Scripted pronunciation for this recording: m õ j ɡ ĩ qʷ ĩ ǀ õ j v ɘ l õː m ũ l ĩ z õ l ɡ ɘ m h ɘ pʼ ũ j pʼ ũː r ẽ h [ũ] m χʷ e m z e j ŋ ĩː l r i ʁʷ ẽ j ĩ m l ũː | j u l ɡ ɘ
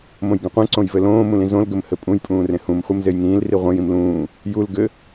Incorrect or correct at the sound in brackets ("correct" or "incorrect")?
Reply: correct